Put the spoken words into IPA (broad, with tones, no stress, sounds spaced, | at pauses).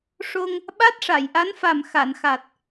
ʂ o˧ ŋ | ɓ a˦˥ t̚ ʂ a˨˩˨ j ʔ a˧˥ n f a˨˩ m x a˨˩˨ n x a˨˩ t̚